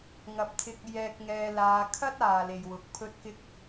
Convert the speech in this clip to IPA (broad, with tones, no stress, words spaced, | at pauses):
ŋɐ˨˥p̚t̪ʰɪ˧k̚ jɛː˧k̚ŋɛː˧laː˧ kʰɐ˥t̚aː˨ le˨jwʊ˨k̚pʰɵ˥t̚ kɪ˥k̚